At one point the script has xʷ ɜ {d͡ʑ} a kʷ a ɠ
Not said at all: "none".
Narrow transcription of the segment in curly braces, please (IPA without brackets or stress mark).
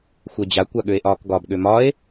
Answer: d͡ʑ